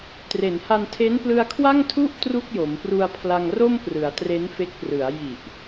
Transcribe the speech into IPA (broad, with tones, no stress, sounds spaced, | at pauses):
t r e˩˦ n h a˧ n tʰ e˦˥ n p l ɯ˧ a̯ kʰ w a˥˩ ŋ tʰ u˥˩ ʔ t r u˥˩ k̚ j o˩˦ m p r u˧ a̯ pʰ l a˧ ŋ r o˥˩ m p r ɯ˩˦ a̯ t r e˦˥ n f e˦˥ k̚ p r ɯ˩˦ a̯ j i˨˩ ʔ